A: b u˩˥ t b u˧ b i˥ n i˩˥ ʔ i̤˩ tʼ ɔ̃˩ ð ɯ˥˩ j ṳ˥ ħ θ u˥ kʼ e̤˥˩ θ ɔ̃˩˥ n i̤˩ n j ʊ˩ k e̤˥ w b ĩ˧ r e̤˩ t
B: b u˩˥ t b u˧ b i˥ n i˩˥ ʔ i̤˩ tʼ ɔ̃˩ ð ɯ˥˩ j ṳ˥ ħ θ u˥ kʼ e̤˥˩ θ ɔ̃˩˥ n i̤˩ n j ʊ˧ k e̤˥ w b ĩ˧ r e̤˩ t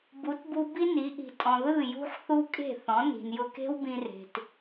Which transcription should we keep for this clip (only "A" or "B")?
B